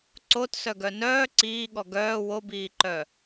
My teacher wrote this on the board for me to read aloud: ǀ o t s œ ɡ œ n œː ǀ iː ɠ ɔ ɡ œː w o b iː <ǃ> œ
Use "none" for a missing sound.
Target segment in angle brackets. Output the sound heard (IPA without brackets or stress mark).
ǃ